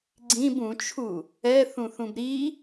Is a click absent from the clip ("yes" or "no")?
no